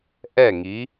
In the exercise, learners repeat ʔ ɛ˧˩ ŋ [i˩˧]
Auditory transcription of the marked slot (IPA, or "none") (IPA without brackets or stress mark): i˩˧